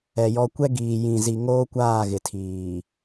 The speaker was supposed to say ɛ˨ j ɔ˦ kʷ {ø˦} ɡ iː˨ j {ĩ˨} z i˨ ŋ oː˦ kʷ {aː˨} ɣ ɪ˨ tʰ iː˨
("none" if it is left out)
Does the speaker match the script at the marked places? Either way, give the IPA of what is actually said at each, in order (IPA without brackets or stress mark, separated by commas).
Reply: ɛ˦, ĩ˨, aː˦˨